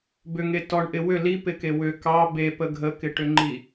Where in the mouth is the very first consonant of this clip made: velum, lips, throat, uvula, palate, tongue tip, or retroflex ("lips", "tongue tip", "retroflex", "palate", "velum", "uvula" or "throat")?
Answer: lips